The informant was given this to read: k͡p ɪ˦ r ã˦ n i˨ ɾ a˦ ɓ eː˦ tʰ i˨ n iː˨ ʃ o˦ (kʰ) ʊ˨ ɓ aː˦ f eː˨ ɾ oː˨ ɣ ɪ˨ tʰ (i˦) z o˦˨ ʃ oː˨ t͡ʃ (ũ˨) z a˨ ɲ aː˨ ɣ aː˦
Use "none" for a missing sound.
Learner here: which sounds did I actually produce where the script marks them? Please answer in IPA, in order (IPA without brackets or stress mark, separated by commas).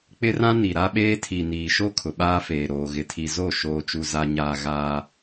kʰ, i˨, u˨